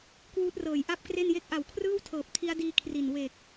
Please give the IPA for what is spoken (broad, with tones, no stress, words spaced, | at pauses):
kwuː˦˥t̚rɤː˨˩jʔa˥˩p̚kre˥˩n je˦˥k̚ʔa˨˩wkʰrɯː˥˩wtʰɤː˨˩p̚ tʰi˦˥a̯diː˧ kʰri˨˩n we˨˩k̚